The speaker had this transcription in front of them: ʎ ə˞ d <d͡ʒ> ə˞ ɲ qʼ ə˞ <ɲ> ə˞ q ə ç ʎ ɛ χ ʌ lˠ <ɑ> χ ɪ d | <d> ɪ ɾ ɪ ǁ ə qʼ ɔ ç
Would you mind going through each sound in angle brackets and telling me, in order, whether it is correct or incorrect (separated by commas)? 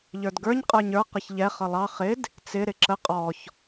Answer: incorrect, correct, correct, incorrect